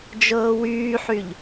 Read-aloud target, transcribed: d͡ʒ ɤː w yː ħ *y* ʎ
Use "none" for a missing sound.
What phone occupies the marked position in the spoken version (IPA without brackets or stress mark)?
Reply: y